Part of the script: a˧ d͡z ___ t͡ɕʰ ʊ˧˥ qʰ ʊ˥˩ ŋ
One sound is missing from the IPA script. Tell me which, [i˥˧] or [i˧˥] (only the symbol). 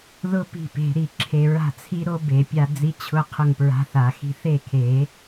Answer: i˧˥